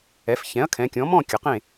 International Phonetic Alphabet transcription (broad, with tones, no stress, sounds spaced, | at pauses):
ɛ˩˧ f ç ɛ̃˩˥ ɐ̯ kʰ ɛ̃˩˧ kʲ ɔ̃˩˥ m ɔ̃˥˨ kʲ ə˩˧ q ẽ˥˨